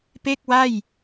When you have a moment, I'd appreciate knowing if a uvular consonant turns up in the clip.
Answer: no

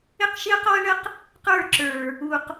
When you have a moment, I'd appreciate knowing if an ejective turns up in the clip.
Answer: no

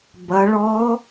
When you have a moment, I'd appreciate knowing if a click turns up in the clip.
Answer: no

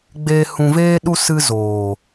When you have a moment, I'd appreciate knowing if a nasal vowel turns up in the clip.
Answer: yes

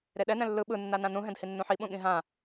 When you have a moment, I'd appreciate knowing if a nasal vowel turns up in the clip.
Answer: yes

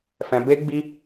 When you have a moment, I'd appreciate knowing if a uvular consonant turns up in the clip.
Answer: no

